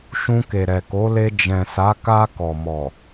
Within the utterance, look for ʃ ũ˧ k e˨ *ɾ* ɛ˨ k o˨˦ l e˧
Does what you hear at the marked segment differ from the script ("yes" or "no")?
no